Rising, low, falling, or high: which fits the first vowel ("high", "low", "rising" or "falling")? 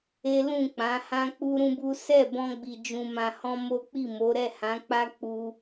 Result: high